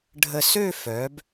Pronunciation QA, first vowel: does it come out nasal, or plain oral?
oral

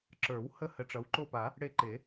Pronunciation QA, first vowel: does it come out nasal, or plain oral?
oral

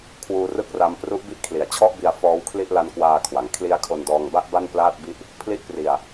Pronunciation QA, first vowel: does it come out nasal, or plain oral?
oral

